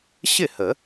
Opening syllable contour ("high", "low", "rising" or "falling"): falling